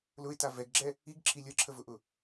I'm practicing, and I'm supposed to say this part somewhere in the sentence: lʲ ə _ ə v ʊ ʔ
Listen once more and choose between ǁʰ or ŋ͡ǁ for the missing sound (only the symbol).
ǁʰ